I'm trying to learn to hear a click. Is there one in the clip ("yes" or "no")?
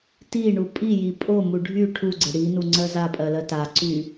yes